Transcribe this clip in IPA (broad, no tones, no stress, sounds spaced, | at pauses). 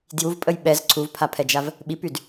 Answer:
d j u v pʼ ə j ɓ ɛ z ǀʰ u v pʰ a pʰ ɛ d͡ʒ a v | ɓ i p y d